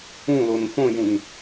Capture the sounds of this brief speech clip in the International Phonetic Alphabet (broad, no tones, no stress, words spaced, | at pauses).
ũlon fõjũn